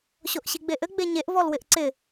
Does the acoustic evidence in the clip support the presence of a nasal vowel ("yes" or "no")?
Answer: no